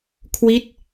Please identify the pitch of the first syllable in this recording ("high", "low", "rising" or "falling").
falling